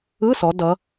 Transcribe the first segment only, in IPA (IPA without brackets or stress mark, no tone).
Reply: ɯ